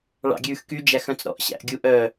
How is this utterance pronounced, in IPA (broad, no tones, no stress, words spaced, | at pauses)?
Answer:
ɭɑ̰ɡʲʉːxky d͡ʒæxœ̃t͡sɾɔ̰ʔ ɕæ̰ʔɡʲuʔœ